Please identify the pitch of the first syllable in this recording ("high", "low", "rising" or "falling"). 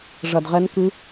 low